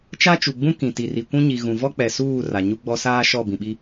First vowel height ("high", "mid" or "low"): low